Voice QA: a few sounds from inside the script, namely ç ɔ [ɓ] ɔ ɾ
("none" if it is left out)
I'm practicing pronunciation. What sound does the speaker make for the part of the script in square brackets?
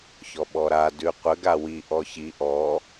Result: ɓ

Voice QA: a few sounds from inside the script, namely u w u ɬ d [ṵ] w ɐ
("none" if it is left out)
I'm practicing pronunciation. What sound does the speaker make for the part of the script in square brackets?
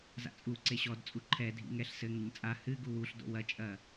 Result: o̰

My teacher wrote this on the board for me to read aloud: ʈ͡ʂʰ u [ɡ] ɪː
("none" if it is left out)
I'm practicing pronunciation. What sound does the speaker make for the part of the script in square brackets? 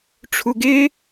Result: ɡ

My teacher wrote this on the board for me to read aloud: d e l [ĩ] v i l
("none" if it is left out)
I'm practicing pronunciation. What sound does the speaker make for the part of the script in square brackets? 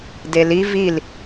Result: i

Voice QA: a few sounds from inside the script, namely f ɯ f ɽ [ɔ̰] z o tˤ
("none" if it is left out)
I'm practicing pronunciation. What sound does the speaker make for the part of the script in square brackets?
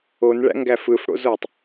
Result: o̰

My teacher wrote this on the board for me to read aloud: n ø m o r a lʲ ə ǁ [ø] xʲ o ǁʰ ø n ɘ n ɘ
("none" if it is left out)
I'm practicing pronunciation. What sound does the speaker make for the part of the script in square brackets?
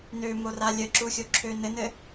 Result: u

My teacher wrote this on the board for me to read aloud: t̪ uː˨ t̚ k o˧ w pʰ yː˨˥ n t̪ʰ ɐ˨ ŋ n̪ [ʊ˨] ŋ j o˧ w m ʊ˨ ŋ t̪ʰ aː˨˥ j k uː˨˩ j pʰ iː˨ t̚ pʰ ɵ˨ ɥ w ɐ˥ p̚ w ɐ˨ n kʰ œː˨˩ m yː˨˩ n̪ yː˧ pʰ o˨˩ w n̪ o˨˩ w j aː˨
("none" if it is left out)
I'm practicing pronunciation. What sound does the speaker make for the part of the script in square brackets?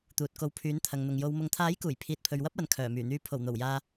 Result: ʊ˨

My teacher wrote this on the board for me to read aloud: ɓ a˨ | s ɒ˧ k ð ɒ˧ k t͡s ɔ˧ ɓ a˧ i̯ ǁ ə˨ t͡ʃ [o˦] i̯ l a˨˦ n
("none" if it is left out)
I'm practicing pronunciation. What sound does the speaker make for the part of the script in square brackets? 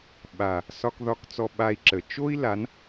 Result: o˦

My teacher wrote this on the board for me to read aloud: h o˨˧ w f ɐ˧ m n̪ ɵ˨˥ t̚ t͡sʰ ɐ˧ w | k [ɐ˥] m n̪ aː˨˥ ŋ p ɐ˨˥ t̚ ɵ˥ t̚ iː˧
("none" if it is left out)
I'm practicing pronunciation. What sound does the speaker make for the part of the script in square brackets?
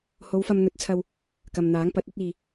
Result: ɐ˧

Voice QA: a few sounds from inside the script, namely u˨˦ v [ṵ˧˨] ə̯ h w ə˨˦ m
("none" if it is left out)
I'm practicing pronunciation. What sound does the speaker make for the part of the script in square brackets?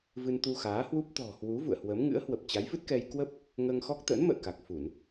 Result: ṵ˧˨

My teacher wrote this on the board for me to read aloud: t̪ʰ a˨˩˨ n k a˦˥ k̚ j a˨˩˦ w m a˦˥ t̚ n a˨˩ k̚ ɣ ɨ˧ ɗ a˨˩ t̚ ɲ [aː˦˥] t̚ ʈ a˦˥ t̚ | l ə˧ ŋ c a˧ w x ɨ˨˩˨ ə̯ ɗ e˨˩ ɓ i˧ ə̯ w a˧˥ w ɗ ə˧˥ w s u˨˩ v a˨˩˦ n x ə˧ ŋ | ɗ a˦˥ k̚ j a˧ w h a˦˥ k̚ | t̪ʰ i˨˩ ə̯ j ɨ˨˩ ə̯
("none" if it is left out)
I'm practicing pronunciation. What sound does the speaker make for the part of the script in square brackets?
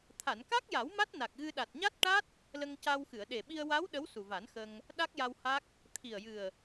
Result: a˦˥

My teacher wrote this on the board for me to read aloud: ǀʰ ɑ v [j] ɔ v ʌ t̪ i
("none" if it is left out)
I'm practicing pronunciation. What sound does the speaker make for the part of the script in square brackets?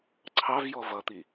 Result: j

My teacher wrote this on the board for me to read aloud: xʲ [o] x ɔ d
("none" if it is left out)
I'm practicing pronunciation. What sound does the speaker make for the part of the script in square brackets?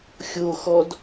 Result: o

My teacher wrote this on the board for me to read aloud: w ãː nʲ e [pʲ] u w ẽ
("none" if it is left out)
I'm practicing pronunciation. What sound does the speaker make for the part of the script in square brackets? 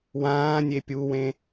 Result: pʲ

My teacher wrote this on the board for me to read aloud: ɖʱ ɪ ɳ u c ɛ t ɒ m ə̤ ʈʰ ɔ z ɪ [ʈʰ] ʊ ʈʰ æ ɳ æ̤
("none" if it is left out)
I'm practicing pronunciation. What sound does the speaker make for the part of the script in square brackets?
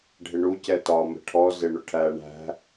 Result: ɳ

